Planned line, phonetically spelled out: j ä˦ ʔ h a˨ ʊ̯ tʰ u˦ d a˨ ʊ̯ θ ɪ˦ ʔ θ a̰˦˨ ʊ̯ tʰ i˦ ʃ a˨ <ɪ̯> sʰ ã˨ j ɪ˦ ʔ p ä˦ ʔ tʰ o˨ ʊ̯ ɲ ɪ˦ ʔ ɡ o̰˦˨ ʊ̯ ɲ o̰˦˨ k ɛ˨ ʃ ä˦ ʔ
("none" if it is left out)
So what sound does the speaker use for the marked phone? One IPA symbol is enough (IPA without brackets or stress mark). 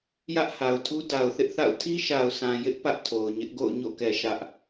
ʊ̯